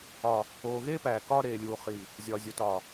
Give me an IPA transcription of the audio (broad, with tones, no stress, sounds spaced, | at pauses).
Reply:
ɒ˨ | oː˨ ɣ eː˦ p æː˨ k ɒː˦ ɾ eː˨ lʲ uː˨ χ i˨ | zʲ ɒ˨ zʲ o˨ t ɒ˨